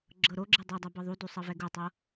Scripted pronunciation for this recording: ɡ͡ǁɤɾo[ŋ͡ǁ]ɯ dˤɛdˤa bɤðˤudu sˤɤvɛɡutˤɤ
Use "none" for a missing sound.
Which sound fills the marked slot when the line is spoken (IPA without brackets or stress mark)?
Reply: ɡ͡ǁ